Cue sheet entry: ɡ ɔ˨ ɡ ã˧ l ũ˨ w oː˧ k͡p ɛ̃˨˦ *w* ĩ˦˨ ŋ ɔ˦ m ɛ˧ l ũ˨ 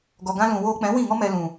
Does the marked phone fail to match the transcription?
no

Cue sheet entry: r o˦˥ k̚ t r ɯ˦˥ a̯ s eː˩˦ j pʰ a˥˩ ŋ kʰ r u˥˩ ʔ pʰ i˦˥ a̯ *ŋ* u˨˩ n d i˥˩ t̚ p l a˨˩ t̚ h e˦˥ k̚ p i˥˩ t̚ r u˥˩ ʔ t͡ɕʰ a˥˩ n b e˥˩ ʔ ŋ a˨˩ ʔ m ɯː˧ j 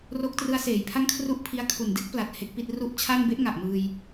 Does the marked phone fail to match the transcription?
yes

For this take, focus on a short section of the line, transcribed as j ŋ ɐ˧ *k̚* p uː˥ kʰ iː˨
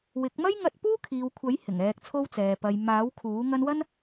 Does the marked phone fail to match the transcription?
yes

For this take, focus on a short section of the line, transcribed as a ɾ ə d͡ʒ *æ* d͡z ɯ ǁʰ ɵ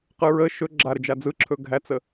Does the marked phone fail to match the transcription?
yes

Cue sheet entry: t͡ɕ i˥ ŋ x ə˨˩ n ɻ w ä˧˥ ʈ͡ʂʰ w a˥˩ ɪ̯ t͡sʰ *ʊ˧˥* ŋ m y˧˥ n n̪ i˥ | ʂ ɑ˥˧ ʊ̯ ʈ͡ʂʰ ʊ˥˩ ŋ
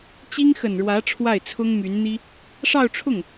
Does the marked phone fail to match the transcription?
yes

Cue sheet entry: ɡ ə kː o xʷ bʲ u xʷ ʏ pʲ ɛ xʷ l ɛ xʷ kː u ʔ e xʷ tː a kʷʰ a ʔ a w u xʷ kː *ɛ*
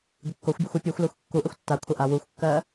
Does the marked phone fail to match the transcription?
yes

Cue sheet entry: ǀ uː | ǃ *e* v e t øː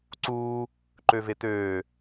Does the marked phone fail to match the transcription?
yes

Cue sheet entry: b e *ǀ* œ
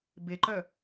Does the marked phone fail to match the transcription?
yes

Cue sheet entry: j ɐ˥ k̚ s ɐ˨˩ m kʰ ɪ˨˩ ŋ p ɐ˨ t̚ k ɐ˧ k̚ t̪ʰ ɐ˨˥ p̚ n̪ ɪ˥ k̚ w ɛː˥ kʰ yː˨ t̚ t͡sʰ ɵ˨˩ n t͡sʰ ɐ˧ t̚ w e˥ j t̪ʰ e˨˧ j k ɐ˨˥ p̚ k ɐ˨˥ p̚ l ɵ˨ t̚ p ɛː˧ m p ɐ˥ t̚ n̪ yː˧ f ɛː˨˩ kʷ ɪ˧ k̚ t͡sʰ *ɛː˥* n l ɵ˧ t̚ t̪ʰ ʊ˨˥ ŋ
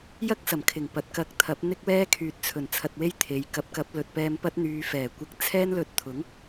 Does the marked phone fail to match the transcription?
no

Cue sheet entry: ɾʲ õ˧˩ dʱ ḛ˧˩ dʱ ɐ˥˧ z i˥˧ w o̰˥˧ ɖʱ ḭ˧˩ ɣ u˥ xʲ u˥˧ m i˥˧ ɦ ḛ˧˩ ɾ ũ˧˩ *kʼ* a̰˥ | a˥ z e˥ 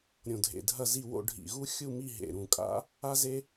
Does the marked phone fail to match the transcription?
no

